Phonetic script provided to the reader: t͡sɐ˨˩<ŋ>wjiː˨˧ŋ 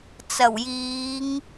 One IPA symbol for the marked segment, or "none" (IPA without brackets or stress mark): none